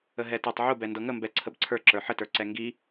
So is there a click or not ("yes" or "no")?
yes